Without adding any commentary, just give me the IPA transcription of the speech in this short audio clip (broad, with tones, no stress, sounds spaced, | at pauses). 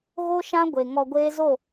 ɣ o˦ ʃ ã˦ ɡʷ e˨ ŋ ɔ˧ ɡʷ eː˦ z o˦˨